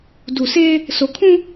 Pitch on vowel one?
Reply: low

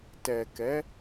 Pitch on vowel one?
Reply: low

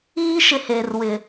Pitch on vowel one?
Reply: high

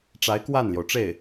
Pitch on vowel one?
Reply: rising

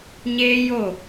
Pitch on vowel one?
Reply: high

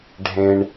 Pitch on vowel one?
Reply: low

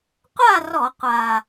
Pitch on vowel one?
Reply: falling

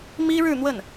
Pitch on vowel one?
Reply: high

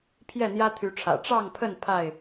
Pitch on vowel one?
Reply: falling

